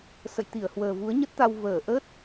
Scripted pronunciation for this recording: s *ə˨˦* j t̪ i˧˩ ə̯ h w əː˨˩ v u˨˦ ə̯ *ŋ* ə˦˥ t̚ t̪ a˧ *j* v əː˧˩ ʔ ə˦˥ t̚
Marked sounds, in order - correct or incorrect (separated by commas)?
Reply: incorrect, incorrect, incorrect